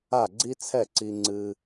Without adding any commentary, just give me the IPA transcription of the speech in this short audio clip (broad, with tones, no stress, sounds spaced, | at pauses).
a˥˩ ɡ͡ǀ i˥ t͡sʰ ɛ˥˩ ǀ i˧ ŋ͡ǀ ɨ˧